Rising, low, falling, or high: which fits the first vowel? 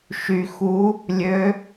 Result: low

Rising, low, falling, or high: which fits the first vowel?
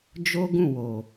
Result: high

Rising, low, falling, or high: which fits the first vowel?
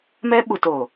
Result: high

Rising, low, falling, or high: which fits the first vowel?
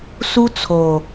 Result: high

